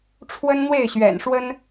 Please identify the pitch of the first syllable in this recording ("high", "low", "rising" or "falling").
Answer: high